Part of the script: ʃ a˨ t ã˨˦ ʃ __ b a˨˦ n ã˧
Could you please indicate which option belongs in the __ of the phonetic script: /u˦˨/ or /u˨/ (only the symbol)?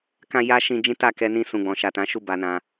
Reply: u˦˨